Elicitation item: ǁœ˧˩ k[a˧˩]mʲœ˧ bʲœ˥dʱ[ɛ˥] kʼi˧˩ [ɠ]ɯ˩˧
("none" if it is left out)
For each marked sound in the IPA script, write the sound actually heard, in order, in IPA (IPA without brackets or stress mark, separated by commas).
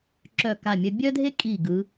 a˧˩, e˥, ɡ